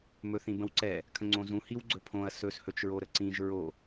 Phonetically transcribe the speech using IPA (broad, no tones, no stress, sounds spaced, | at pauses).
m ɵ θ ĩ b ə̃ w ǀ ɛ | kʰ ə̃ ŋ͡ǀ õ z ũ h i w ɡ͡ǀ ɵ pʰ õ ɐ̯ s ɵ s h ɵ t͡ʃ ɹ o ɾ ə ǀ ĩ ʒ ɹ o